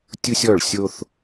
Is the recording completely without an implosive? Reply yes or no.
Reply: yes